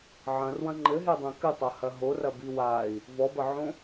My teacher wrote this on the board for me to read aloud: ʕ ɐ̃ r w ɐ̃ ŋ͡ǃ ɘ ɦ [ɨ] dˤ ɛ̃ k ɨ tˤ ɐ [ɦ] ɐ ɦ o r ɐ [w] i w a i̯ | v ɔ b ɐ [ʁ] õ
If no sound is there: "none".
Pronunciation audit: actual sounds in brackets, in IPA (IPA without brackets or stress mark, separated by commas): e, h, b, ʕ